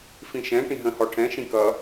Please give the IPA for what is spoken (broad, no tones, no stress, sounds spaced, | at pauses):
f ĩ ʃ ɛ̃ ʈ ĩ ɦ ə̃ h ɔ ʈʰ ɛ̃ ʃ ĩ k ʌ